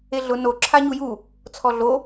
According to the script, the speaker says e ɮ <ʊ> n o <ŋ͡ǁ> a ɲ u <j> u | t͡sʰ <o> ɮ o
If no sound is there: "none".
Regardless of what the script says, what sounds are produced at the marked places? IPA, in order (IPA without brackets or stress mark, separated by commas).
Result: ʊ, ǁʰ, j, ɔ